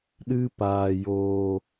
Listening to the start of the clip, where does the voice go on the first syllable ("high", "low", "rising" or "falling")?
high